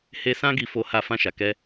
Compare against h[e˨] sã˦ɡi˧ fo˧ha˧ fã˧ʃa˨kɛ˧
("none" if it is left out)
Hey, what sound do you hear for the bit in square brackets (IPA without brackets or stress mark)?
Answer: e˦